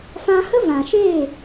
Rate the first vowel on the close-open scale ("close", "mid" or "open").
open